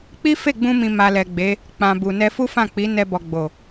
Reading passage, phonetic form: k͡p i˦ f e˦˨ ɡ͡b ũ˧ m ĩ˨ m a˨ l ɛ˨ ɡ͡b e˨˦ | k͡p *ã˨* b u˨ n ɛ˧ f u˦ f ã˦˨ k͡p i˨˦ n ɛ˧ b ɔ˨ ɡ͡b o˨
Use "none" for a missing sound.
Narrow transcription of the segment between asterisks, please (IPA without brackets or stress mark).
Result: ã˨